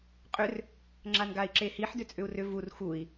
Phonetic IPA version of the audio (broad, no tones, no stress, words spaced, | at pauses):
qʼʏr | ŋ͡ǁanɡai̯ǁehiħ dʏt͡sʼʏu̯rʏ vur xui̯